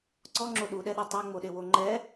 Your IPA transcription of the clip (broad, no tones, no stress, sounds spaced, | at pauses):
ǀ ɔ ŋ͡ǁ o ɗ u ɗ ɛ ɗ u tˤ o ŋ͡m o ɗ e w o ŋ͡ǃ ɛ